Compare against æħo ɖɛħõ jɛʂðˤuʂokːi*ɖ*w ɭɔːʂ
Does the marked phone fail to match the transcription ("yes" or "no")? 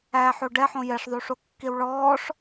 yes